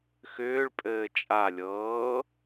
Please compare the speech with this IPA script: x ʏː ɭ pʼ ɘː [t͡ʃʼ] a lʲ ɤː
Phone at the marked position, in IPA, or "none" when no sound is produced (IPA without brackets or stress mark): t͡ʃʼ